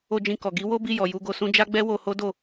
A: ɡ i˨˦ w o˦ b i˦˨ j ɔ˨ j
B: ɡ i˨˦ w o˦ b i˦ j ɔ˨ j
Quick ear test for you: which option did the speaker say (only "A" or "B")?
A